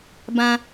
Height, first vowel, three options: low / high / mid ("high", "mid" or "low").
low